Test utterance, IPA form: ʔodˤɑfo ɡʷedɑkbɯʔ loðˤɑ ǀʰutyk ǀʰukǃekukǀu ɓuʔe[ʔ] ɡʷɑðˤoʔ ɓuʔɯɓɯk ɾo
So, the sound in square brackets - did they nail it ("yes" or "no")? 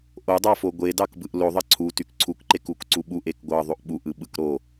no